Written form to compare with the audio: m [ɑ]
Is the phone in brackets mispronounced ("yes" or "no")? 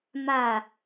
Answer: yes